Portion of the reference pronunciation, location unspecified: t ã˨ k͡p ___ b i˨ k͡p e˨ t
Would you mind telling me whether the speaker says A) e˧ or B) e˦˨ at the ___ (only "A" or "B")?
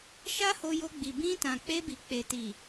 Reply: A